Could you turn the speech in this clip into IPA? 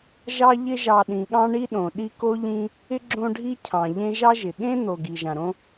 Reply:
ʒ ɑ˦ ʎ ɪ˦ ʒ ɑ˨ ɗ ĩ˩ ɠ ɑ̃˦ ɳ i˦ ɗ õ˩ ɗ i˦ k o˥ ʎ ĩ˦ | ɪ˥ ɡ͡ǁ õ˦ ɖʱ i˥ cʰ ɑ̃˩ ʎ ẽ˦ ʒ ɑ˥ ʒ ɪ˩ ɠ ẽ˥ n̪ o˨ ɡ i˩ ʒ ã˩ ɾ õ˥

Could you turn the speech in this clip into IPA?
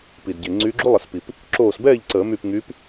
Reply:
p i˩ d ɟ e˩ ŋ͡ǀ yː˨˦ ɡ͡ǁ u˦˥ lˠ ə˨˩˦ s p i˩ p | ǁ oː˧˩ s b ɛː˥˨ ʎ ǀ əː˨˩˦ m y˧˩ p ŋ yː˨˦ p

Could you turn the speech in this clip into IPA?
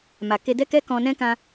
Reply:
m a˨ k e˧ d ɛ˦ k ɛ˦ k ɔ̃˧ n ɛ̃˦ k ã˧

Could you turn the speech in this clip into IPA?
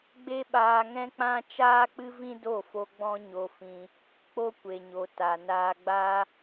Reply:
ɡ͡b e˦ ɓ aː˧ ŋ ɛ̃˦ k͡p ã˦ t͡ʃ aː˦ k͡p ɨ˦ v ĩ˦ d o˦˨ f o˧ ɡ͡b ɔ̃˦ ɲ o˧ f ĩ˧ | k͡p o˦ kʷ e˨ ɲ o˨ t a˨ n aː˧ ɡ͡b a˦

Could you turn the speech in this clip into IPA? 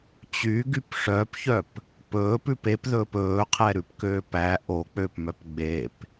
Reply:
t͡ɕ y ɡ y p ʂ œ p ç œ p | p ɵː p ʉ p e p ð ɵː p ɵː qʰ ɛ ɾ ʉ p k øː p æ ʔ o k͡p ø p m œ p ɡ͡b e p

